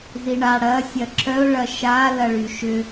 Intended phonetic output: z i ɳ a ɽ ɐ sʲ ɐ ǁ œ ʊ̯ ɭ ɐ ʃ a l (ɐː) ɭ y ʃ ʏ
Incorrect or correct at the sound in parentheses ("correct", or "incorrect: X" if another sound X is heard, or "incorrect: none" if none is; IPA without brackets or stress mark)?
incorrect: ɐ